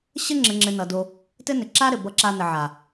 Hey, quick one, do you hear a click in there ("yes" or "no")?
yes